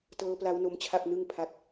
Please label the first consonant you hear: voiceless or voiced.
voiceless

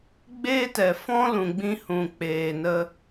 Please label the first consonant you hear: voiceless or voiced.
voiced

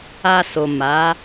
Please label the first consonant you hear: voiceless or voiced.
voiceless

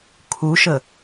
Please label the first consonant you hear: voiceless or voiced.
voiceless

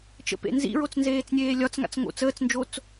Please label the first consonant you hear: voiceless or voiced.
voiceless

